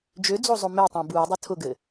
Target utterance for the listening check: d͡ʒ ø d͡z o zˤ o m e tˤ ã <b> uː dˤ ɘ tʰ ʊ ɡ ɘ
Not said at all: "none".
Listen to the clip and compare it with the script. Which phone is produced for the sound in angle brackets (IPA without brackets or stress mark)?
b